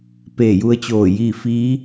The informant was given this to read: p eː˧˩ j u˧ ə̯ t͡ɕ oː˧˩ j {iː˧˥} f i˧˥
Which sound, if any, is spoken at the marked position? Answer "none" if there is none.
iː˥˨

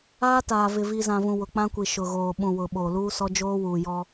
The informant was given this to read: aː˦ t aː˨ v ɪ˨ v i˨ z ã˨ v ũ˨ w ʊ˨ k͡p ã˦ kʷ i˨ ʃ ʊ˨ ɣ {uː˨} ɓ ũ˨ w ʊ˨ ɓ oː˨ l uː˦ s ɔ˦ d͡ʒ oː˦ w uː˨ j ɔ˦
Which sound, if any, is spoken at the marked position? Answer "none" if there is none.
oː˨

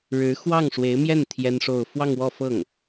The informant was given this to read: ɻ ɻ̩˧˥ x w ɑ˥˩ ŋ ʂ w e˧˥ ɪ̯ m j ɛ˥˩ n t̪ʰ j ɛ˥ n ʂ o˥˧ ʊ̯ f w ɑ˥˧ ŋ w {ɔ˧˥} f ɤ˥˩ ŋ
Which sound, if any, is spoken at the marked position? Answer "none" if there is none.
ɔ˥˧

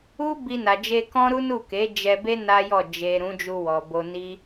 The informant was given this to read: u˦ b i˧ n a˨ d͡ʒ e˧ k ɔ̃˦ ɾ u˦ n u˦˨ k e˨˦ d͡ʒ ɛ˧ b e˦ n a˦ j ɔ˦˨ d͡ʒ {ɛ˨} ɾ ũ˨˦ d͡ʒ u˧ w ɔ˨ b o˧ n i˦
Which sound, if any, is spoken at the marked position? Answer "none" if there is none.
e˨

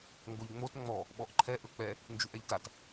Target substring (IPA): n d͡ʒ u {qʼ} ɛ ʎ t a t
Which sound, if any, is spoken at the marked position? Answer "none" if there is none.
ʔ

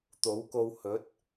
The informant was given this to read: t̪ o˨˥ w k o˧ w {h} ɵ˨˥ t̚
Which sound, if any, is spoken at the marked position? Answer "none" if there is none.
h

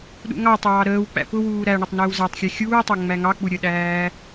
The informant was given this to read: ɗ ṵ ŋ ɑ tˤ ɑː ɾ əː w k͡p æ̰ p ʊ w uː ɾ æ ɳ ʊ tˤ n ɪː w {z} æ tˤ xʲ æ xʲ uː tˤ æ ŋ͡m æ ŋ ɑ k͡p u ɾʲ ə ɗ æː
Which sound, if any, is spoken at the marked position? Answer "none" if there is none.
z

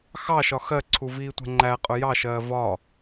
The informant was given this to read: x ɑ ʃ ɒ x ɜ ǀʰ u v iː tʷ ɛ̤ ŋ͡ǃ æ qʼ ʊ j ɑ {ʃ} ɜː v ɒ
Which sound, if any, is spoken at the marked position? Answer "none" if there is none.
ʃ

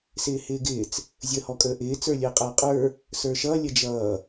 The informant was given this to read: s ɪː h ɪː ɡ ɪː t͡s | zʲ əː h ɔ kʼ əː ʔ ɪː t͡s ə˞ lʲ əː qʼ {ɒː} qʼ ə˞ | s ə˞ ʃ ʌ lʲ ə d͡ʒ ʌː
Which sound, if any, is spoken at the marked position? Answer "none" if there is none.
ʌː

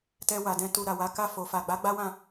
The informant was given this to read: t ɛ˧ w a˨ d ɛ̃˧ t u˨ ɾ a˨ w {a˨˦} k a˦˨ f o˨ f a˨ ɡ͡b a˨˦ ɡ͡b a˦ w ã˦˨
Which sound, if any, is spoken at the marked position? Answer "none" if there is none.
a˨˦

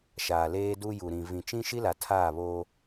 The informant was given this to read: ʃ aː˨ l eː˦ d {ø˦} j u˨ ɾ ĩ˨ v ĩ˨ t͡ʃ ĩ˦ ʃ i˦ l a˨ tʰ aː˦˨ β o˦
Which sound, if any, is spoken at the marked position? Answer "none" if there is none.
u˦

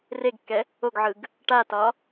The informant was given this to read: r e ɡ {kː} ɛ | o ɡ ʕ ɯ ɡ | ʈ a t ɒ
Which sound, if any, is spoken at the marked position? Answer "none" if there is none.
kː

